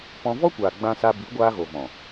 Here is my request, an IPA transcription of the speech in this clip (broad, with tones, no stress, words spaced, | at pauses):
pɔ̃˧ vɔ˦kʷaː˨ ɡ͡bã˧sa˧ bi˨˦ ɡʷaː˧ɣo˨vɔ̃˨